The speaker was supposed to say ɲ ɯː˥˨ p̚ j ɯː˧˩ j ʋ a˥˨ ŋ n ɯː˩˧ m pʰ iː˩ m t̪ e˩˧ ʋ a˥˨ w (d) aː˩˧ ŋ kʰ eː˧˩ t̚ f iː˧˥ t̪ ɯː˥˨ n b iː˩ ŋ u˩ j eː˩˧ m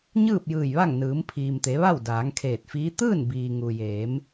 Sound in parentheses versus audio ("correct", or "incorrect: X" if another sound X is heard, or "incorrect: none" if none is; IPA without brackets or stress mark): correct